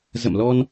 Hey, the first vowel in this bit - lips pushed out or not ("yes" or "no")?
no